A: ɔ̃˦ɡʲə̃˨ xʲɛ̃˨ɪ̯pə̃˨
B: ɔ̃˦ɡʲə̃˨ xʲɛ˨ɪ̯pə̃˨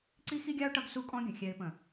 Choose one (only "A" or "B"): B